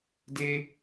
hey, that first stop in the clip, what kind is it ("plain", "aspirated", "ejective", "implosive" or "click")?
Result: plain